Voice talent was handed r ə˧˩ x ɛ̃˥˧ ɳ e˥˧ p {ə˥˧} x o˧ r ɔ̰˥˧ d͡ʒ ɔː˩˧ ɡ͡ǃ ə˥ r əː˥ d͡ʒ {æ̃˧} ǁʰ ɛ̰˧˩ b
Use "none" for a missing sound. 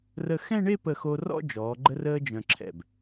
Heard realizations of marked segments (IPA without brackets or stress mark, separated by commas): ə˧˩, œ̃˧